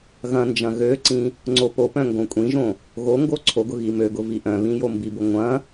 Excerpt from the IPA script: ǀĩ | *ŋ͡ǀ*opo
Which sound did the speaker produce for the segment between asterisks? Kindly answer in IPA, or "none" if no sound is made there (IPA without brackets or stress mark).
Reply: ŋ͡ǀ